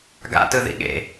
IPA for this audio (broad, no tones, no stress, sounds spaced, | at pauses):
ɡ a̰ t ɯ ð ḭ ɠ ḛ